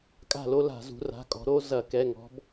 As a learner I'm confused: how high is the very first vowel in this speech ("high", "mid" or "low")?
low